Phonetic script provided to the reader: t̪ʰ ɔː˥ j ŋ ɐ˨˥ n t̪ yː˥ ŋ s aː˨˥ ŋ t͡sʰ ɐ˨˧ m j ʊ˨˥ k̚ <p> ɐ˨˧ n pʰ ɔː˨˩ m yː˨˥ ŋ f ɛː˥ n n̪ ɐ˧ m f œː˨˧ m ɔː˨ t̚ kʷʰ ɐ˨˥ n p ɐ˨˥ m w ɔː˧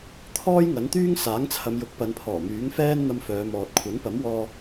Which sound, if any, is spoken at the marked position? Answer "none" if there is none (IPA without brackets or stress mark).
p